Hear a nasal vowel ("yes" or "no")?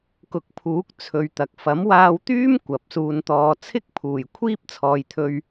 no